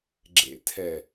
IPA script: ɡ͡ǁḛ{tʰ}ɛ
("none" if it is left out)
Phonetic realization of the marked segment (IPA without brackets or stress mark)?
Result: tʰ